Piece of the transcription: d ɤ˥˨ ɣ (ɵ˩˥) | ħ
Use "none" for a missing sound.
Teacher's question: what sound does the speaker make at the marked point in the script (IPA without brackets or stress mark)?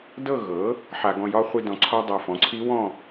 ɤ˩˥